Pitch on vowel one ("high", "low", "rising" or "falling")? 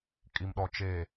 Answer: low